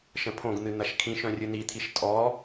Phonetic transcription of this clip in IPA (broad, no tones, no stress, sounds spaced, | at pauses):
ʃ ə̃ pʰ õ ɡ n̪ ɨ n̪ ɐ ʃ kʰ ĩ ʃ œ̃ rʲ ɨ n i t̪ʰ i ʃ tʼ ɔ